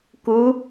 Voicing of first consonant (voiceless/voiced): voiceless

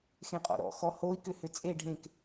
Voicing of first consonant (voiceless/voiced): voiceless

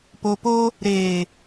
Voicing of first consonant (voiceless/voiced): voiceless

